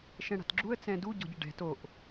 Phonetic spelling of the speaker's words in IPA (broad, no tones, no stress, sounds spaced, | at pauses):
ʃ ɛ̃ ɽ a̤ t ɡ͡ǁ u ə̯ t͡s ɛ̃ d u ɟ ɔ̤ ɟ ɪ ɖ ɛ̤ t o ʔ